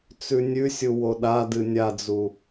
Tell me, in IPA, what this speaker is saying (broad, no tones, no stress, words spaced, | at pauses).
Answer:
t͡sʉnʲʉsʲu woɗadɨ nʲad͡zu